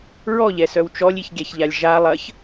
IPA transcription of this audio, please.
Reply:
ɹ ɔ ʎ ɛ s œ w t͡ʃ ɔ lʲ i ç ɡʲ ɛ ç ʎ a lʲ ʒ a lˠ ɐ ç

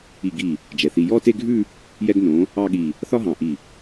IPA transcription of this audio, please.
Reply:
i˧˩ ɡ i˧˩ | d͡ʒ ɛ˩˧ θ i˧ j ɔ˥˧ t e˥˧ ɡʱ ʉ˥˧ | j ɛ˧ ɡ n õ˩˧ | ɑ˥˧ ɠ i˧˩ | θ ɒ˥ ɦ ɑ̃˧˩ ʔ i˧˩

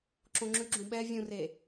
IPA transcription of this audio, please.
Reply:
ǁ õ ŋ͡ǁ ʉ ɡ͡ǁ ũ ɓ ɛ vʲ ũ r e

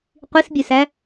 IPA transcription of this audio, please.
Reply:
qʷ i s bʲ ɵ s æ

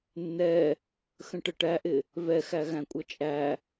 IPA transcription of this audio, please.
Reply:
nː ɛ | x ə̃ ʈ ə ʈ æ ʔ ɪ | v ɛ x æ ɣ æ̃ kʷʼ ʌ t͡ʃʼ æ

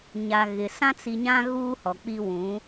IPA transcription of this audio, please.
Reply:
ɲ a˨ ɣ ɪ˨ s ã˦ t͡s i˨ ɲ ã˦ ɣ uː˦ h ɔ˨ k͡p i˦ w ũ˨˦

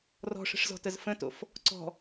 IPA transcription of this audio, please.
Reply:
r ɔ̤ ʂ ə̤ ʂ z ɔ̤ t ə z f ə̃ t o̰ f | ǀ ɔ̤

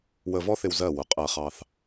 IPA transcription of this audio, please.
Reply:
w ə˧ v ɔ˥ θ ɪ˧ w z ɜ˧˩ w ʊ˩˧ qʼ ɜ˧˩ χ ɑ˧ θ

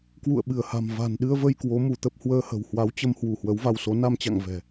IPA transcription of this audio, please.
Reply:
k w ṵ˧˨ ə̯ ɓ ɨ˧˩ ə̯ h a̤˨˩ m v a̤˨˩ n ɗ ɨ˧ ə̯ v ə˧ j k w o˨˦ m u˧˩ t̪ ə˦˥ p̚ h w əː˧ h ə̤˨˩ w h w a˨˦ w t͡ɕ ə˧ m h w u˧˩ h w ə˨˦ w v a˧ w s o˨˦ n a˧ m t͡ɕ a̰˧˨ ŋ v ɛ̤˨˩

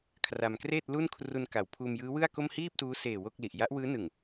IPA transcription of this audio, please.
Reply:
kʰ r a˧ m k r eː˥˩ t̚ l u˥˩ n kʰ r u˧ n k a˩˦ w pʰ uː˧ m j ɯː˦˥ w ɯ˥˩ a̯ k o˥˩ m h iː˥˩ p̚ t uː˦˥ s eː˨˩ w o˥˩ k̚ l i˨˩ ʔ j a˦˥ ʔ w ɯː˦˥ n ɯ˨˩ ŋ

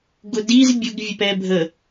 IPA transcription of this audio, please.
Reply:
ɡ ʊ d i z bʲ ʊ ɡ vʲ ə p ɛ bʱ ə

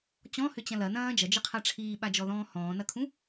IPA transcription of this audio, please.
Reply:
t͡ɕ ɔ̃ h ʏ t͡ɕ ɐ̃ l ɐ n ɐ̃ː d͡ʒ ɐ d͡ʒ ə qʰ a ʈ͡ʂʰ iː ɓ a d͡ʒ ɔ ð ɔ̃ː h ɔ̃ː n ɐ kʰ ũ

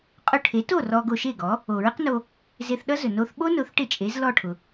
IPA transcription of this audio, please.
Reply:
qʼ ʊ˧ ʈʰ e˩˥ t o˥˩ r ɔ˧ ɡ o˧ ʃ e˥˩ ɡ ɔ˩˥ | o˩ ɹ ɪ˥ q n o˧ | z e˧ θ ɗ ʌ˥ z ɵ˩ n o˧ θ ɓ o˥ n ʊ˩˥ θ ʈ ɪ˥˩ t͡ʃʼ e˩˥ z l ɔ˥˩ ʈʰ ʊ˩

